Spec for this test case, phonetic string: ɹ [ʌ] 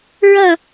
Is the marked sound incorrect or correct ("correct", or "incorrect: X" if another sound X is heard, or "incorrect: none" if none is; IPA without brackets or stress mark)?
correct